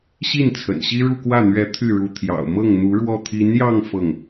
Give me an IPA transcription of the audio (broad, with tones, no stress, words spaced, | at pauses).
ɕi˥˩n t͡sʰə̰˨˩nɕi˥ ɻu˥˧kwä˥˩n̪ɥɛ˧˥ t̪ʰy˥˩ɻu˧˥t̪ʰjɑ̰˨˩ʊ̯ mɤ˥˩ŋn̪u˧˥ɻwɔ˥˩ t̪ʰi˧˥njɑ˥˧ŋ fɤ˥˩ŋ